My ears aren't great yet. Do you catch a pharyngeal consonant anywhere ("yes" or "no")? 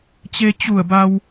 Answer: no